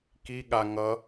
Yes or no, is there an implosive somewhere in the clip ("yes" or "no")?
yes